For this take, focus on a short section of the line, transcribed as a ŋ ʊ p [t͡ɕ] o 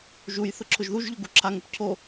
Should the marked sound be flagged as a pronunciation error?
yes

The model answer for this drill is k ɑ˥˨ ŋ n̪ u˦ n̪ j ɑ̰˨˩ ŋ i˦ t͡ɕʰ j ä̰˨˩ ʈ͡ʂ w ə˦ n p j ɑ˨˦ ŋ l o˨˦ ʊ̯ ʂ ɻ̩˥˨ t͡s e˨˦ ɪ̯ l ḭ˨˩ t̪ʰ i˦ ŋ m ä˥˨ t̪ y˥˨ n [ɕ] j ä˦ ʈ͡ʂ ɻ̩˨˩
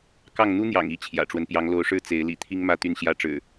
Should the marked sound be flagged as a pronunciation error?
no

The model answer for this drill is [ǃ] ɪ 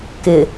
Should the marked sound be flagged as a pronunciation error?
yes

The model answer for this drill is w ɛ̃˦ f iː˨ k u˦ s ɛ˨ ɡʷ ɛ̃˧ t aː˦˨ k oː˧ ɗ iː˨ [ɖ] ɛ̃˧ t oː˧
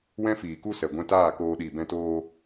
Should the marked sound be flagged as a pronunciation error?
yes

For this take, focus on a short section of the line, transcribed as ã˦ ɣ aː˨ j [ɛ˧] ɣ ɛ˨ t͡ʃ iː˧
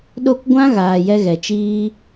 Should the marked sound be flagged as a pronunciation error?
no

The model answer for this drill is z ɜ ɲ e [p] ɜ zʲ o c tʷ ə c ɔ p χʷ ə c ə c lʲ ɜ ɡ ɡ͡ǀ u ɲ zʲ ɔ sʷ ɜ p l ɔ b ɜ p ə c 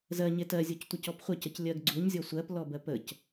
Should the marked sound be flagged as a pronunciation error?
yes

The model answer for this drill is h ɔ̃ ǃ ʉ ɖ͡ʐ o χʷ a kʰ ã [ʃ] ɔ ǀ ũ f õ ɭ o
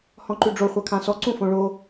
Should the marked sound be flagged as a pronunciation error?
yes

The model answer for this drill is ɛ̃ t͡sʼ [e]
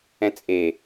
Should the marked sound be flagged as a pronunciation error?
no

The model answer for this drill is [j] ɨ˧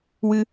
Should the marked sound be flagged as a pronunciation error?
yes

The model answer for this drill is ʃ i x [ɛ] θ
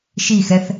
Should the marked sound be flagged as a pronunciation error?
no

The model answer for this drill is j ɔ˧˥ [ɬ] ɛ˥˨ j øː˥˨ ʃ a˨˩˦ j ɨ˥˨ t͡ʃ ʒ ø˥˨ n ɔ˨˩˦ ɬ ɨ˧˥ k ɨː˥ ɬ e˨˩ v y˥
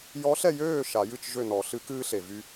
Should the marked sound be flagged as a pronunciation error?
no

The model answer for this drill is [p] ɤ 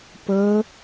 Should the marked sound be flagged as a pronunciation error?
no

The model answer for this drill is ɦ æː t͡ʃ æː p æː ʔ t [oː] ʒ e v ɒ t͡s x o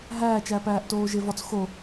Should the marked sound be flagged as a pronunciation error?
no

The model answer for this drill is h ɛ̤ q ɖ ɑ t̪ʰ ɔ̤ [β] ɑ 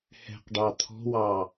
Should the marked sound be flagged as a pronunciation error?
yes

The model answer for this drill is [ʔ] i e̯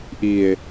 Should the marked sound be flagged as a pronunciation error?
no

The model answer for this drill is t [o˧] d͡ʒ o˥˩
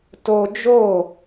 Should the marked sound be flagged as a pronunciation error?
no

